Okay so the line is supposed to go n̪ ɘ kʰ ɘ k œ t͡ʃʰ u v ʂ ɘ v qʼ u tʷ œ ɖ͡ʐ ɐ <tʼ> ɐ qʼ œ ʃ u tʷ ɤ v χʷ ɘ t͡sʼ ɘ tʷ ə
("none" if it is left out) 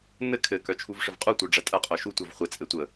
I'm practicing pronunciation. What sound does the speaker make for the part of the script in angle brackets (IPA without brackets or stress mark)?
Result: tʼ